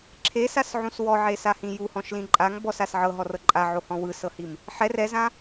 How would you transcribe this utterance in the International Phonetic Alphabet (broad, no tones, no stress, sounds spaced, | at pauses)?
ǁʰ e s a s ʕ ũ s w ɔ ʕ e s a h ĩ j u h ɔ̃ ʃ l ĩ ǃʼ a ŋ b ɔ s a s ʕ ɤ ɦ ɔ r ɤ ǃʼ a ʕ o h ɔ̃ w ɯ s ɤ h i m | ħ ɛ r ɛ z ã